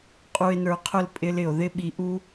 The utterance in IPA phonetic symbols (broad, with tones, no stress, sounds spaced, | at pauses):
qʼ u˨ e̯ n ə˞˨ qʰ ʊ˦˨ l pʼ ɪ˦ l ɪ˨ o̯ ð ɪ˦ ɓ i˨ ʔ u˦